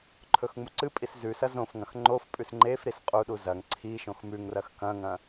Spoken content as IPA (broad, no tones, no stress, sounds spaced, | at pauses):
ǃʰ ɵ x ŋ͡m u ǀ ɨ pʼ i s z ʉ s ɐ z õ f ŋ ɐ̃ x ŋ͡ǃ o f pʼ ʉ s ŋ͡ǃ e f ɾ i s qʼ u ɗ u z ɐ ŋ ǀʰ i ʃ õ x m ʉ ŋ r ɐ x k ɐ̃ ŋ ɐ̃